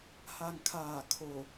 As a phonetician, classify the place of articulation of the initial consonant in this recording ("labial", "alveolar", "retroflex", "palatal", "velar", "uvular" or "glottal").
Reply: glottal